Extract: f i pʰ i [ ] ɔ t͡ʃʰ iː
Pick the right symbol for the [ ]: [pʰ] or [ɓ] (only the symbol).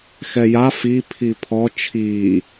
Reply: pʰ